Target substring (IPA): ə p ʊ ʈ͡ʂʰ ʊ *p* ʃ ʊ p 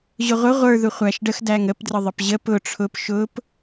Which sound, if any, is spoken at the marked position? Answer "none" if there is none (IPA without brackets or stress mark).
p